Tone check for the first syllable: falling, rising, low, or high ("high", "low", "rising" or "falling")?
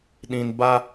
low